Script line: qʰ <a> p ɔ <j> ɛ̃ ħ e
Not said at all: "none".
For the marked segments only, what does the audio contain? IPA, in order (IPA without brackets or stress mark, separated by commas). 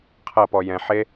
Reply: ɐ, j